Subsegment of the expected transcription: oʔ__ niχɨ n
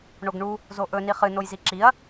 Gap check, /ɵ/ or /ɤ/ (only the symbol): ɵ